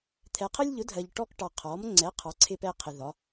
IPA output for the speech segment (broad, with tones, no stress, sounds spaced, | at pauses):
t̪ʰ ɛ˨ qʰ ə˦ lʲ ʎ ʊ˩˥ dʱ ɜ˨ ʎ ʈ ɔ˦ k ʈ ɑ˨ qʰ ɔ˩˥ m ŋ͡ǀ ɛ˩˥ qʰ ɑ˩˥ ǀʰ ɪ˦ p ɛ˦ qʰ ɪ˨ ð ɒ˩˥